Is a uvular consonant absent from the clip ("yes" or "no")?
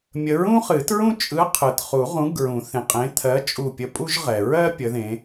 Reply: no